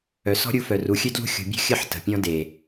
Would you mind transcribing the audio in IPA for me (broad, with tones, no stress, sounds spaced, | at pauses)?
œ˨ s ɔ̤˦ ɾʲ u˧ f œ˨ r u˨ xʲ ø˦ d l ṳ˦ xʲ ṳ˨ bʲ ṳ˦ xʲ ə˦˨ ħ t ə̤˨ pʲ ɔ̃˧ d e˨